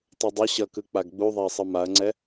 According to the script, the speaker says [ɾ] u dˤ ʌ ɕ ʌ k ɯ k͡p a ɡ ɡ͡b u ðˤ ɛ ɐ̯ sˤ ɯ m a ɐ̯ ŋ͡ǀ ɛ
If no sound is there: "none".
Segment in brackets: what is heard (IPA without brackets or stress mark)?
tˤ